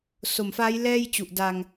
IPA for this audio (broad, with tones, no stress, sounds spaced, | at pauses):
s o˨˩ m f aː˦˥ j l ɛː˥˩ j t͡ɕ u˨˩ ʔ d a˧ ŋ